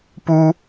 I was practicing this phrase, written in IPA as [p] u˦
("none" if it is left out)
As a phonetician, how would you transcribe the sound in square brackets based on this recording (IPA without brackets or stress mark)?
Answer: p